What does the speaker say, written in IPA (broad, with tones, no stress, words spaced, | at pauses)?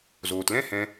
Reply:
zoː˨tlɛ̃˦ hɛ̃˦